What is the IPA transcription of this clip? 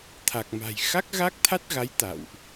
t̪ʰa˨˩k̚ma̤˨˩j xa˦˥k̚ ɣa˦˥k̚t̪ʰa˦˥t̚ɣa˨˦j t̪a̰˧˨wʔ

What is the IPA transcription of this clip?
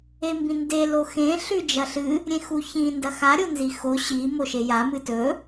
embĩnde loxẽ ɬʉd͡ʒɐɬɨ | ɾʲẽxuçĩ ndɐxa ɾʲonzixo ɕi moʃeja mɨtɵ

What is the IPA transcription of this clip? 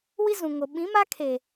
wi˦zũ˨ŋo˨ ɓĩ˨˦ma˦ kʰe˨

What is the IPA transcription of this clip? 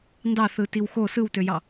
ndɑθɯtiw xo sɯwtøjɑ

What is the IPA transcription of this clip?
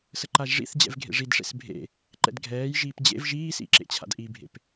səǃaʒʐḭθd͡ʑɛ̰v ɡʱḛʐidʂḛs bʱḛ | ǃɛ̰dɡʱɛːjʒiːp d͡ʑḛv ʒiːsḭ ǁḛt͡ɕʰa̰dʔibʱḛp

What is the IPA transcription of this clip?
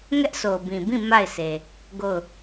ŋɛ˦ʔso˨bĩ˨bĩ˦˨ ma˦˨ɪ̯sʰe˨ | ɡo˦˨ʊ̯

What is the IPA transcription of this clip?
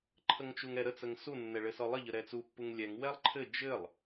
ǃʰəŋt͡ʃuŋɛɾə t͡səŋsu nːɛɭɘsɔlˠə ʎəɾɛt͡su pːuŋlʲɛŋ wɛlˠǃʰɘ d͡ʒɘlˠ

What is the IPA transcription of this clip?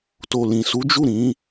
to˨lĩ˨ su˨˦d͡ʒu˦˨ɾĩ˨˦

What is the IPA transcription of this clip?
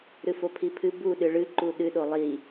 ɾɨfopʰipʰɨ bu ɗɨɭɨ ǃuɗɨ ɗolˠi

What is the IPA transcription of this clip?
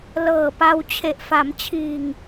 lɤː˨˩pa˧w t͡ɕʰe˨˩ʔfa˩˦mt͡ɕʰiː˨˩ŋ

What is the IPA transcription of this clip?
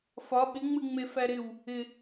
fɒ ɓɪŋ͡mɨ ŋ͡mefæɾɪw | ɪ

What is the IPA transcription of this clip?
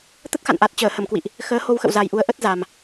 t̪ə˦˥t̚xa̰˧˨nʔa˨˩t̚ t͡ɕəː˧˩hə˧˩mkwḭ˧˨ʔ | xəː˨˦ho˧wxə̰˧˨w za˨˩jʔu˨˦ə̯ʔə˦˥t̚ za˨˩m

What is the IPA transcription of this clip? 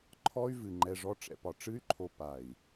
ǃʰɔ˦y̯vɨ˨ ŋ͡ǃɛ˨ʐɔ˦ʈ͡ʂɛ̰˨pɒ˨ ʈ͡ʂɨ˦y̯ǃʰo˨ pa˨i̯

